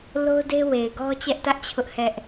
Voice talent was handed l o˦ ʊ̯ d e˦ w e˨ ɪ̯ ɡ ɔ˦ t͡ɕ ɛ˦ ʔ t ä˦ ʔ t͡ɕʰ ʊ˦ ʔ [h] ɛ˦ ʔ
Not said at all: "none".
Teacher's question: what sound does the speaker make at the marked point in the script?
h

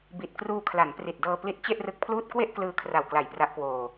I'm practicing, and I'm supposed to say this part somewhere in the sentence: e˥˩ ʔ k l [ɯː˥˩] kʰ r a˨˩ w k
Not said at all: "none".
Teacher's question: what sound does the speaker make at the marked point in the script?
ɯː˧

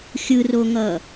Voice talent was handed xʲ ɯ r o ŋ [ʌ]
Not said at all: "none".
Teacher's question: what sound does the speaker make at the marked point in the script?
ʌ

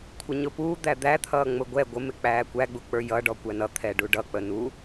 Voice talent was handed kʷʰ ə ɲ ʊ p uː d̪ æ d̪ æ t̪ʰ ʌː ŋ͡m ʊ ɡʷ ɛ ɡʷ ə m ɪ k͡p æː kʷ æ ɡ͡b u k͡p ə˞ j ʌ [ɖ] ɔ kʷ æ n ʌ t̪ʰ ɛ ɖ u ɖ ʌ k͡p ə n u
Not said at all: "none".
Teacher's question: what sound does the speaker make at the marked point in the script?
ɖ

